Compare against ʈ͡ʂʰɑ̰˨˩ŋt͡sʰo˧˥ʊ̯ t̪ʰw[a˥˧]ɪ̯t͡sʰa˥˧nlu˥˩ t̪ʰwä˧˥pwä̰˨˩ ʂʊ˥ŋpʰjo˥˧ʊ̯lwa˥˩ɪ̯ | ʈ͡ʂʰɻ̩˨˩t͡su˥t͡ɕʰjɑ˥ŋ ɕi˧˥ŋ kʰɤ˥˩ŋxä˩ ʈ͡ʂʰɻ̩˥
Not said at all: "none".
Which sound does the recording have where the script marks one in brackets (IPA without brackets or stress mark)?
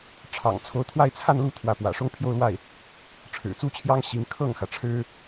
a˥˧